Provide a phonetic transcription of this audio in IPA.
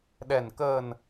ɗ ɛ˨˩ n k əː˨˩ n

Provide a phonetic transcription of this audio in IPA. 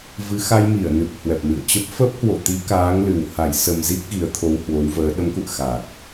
v ɨ˨˦ x a˧ j m i˧˩ ə̯ n ɨ˨˩ p̚ h w ɛ˨˩ p̚ m ɨ̰˧˨ ə̯ t͡ɕ ə˦˥ p̚ f ə˦˥ p̚ h w o̰˧˨ t̪ i˨˦ k aː˨˦ ŋ l ɨ˨˩ w h a˧˩ j s ə˨˩ m z i˦˥ k̚ ɣ i˨˦ ə̯ t̪ʰ o˧ w h w o˨˦ w v əː˨˦ ɗ ə˨˦ m k ṵ˧˨ ə̯ x a˨˩ t̚

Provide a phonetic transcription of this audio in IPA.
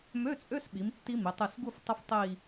m ø˧˥˧ t͡sʼ ø˧˥˧ s ɓ i˩˧ m tː i˦˥ m i˩˧ tˤ i˧˩ s ɡ u˥˧ f tˤ ə˦˥ f tˤ i˥˧

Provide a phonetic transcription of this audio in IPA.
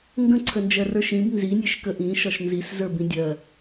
ŋ ɡ ə̃ ǀʰ ə n d͡ʒ ɜ r ə˞ ʃ ĩ b n z i nʲ e ʃ k ə ʔ ĩ ʃ ɒ ʃ n z i s z ə˞ b ĩ dʲ ɜ

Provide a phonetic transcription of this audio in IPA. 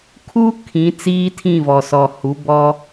kʰ uː˦ kʰ ĩ˨˦ t͡s iː˦ tʰ ĩ˦˨ v ɔ˨ s ɔ˨ h u˨˦ b ɔ˦

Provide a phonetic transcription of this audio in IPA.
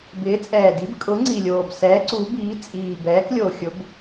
b ɪː˨˥ t͡sʼ ɛː˨˩ d i˨˥ b kʼ ʊ˨˥ ŋ͡ǀ i˨˩ lʲ oː˨˩ b s ɛː˨˥ ǀ u˨˥ b iː˨˥ t͡sʼ iː˨˩ b ɛː˨˥ k lʲ o˨˩ xʲ ʊ˨˥ b

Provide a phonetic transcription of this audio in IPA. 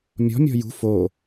mʲ ɔ̤ mʲ ɔ̤ j ṳ f o

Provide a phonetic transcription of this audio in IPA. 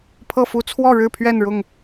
pʰ ɤ˥˨ f u˦ t͡sʰ w ɔ˥˨ ɻ ɻ̩˥˨ pʰ ɥ ɛ˥˨ n ɻ ʊ˥˨ ŋ

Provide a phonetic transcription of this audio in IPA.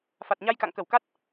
f a˨˩ t̚ ɲ a˧ j k a̰˧˨ ŋ k ə˧˩ w k a˦˥ t̚

